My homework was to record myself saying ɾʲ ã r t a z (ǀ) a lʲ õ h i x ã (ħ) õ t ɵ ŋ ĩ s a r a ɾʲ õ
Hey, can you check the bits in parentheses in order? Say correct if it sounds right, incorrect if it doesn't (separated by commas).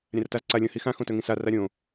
correct, incorrect